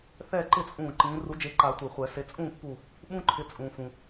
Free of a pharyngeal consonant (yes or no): yes